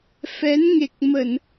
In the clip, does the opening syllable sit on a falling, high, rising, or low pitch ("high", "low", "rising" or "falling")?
rising